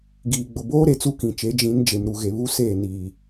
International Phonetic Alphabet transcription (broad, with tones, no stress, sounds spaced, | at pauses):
ɡ iː˨ ɡ͡b ʊ˨ b oː˦ ɾ e˨ t͡s u˦ k ĩ˨ t͡ʃ e˨˦ d͡ʒ ĩ˨˦ n d͡ʒ e˨ m ɾ u˨ ɣ e˨ β u˦ s eː˦˨ n iː˨